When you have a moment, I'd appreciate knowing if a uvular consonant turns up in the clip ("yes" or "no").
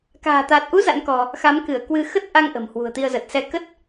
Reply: no